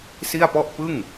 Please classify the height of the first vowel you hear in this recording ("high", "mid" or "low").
high